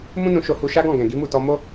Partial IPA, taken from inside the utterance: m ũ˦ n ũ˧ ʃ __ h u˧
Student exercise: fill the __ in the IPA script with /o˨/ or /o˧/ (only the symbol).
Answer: o˧